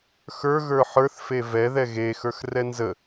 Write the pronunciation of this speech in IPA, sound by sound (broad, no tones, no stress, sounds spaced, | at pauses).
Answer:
x ə˞ ɣ ə˞ ħ ə˞ θ f e v ɛ ð ɛ ɣ e x ə˞ x r ɛ n z ə